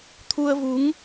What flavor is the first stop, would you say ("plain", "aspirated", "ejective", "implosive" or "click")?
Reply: aspirated